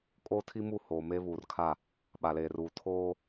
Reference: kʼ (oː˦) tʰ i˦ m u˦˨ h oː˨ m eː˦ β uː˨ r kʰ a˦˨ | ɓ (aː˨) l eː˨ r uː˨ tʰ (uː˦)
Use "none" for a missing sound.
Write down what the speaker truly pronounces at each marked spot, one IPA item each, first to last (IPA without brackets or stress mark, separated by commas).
oː˦, a˨, oː˦